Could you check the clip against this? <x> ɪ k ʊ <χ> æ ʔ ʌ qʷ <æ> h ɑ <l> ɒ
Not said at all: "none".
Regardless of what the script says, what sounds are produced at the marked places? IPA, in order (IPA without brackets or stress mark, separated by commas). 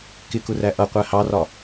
k, r, æ, r